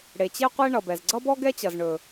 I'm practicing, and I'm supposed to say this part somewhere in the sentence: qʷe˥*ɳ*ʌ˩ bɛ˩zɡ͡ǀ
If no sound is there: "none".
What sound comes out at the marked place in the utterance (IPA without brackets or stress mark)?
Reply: ɳ